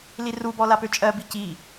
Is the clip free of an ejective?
no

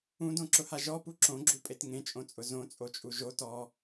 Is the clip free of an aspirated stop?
yes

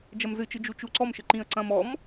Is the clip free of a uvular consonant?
yes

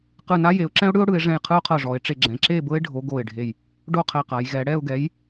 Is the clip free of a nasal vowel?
no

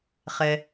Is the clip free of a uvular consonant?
no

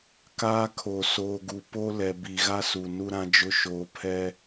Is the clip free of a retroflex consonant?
yes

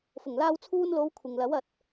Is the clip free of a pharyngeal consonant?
yes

